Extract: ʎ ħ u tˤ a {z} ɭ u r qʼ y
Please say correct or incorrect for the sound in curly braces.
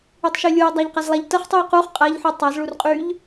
correct